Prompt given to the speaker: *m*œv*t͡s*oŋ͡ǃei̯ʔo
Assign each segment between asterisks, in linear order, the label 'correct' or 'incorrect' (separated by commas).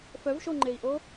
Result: incorrect, incorrect